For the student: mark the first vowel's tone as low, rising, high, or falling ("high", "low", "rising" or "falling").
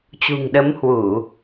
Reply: low